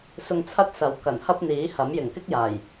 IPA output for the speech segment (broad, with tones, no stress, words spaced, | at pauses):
sʊ˧ŋt͡sʰɐ˥t̚sɐ˨˧w kɐ˨˩nhɐ˥p̚n̪iː˨˥hɐ˨˥m jɪ˨˩ŋkɪ˥k̚jaː˨˩j